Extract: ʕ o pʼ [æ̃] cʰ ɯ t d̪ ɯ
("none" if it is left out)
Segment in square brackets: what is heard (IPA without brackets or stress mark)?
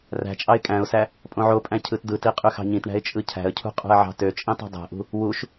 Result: æ̃